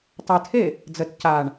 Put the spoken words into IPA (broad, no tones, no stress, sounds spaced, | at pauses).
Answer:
tˤ ə tʰ e | d͡z ə t c a ɳ